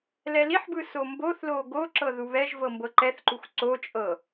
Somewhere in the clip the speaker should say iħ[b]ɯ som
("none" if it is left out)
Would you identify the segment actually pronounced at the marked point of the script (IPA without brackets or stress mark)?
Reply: b